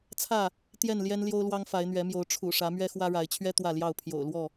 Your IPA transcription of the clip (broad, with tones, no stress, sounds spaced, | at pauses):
t͡sʰ ä˥˨ | t̪ j ɛ˥˨ n l j ɛ˦ n l j o˦ ʊ̯ l w ɑ˦ ŋ f a˨˦ ɪ̯ n̪ ɥ ɛ˨˦ m j o˨˦ ʊ̯ ʈ͡ʂʰ ṵ˨˩ ʂ ä˨˦ m ɥ ɛ˦ x w ä˦ ɻ a˨˦ ɪ̯ t͡ɕʰ ɥ ɛ˦ t̪ w ä˥˨ l j ɑ˥˨ ʊ̯ pʰ j o̰˨˩ ʊ̯ l w ɔ˥˨